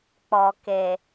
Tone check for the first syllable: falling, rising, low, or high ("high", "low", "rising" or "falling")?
low